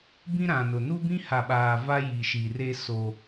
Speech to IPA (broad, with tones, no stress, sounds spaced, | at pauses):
b ĩ˦ ɾ ã˨ n ʊ˨ n u˦ b ĩ˦ h a˨ ɓ aː˨ v a˦ j i˨ ʃ i˨ r e˦ s o˦